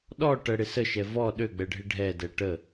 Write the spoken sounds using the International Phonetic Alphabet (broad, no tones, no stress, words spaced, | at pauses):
ɗɔ ʈəɽɪ səʃɛ vɔ ɗøɡ͡bɛɖʱɪ ɖʱɛdɛ ʈə